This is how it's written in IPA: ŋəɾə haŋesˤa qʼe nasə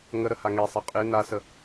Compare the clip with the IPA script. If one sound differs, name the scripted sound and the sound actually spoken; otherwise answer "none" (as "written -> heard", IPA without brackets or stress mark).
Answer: none